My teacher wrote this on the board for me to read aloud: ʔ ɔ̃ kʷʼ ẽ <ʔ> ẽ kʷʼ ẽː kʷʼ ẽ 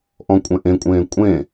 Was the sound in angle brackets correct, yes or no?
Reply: yes